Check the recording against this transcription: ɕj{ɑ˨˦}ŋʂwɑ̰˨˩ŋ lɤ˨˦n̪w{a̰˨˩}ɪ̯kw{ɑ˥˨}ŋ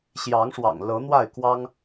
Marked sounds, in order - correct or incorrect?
correct, incorrect: a˥˨, incorrect: ɑ˦

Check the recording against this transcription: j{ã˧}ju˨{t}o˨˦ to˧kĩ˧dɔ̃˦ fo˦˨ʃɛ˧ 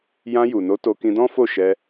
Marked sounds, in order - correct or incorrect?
correct, incorrect: n

